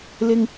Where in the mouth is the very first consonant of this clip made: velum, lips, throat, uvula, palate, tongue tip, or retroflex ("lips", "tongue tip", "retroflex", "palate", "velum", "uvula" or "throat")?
tongue tip